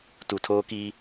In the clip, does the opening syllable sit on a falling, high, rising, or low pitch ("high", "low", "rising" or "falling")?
low